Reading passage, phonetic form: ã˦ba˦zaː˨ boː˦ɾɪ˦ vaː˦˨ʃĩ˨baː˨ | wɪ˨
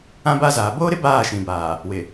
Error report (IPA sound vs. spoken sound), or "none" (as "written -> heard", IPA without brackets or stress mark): v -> b